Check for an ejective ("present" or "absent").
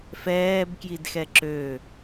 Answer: absent